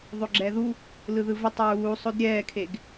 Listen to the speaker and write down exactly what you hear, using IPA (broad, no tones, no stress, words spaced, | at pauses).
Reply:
ðˤoɡ͡ǁɛðu | lɯðɯvetˤ ɹuːsˤod ɾʲɛːkʰeɡ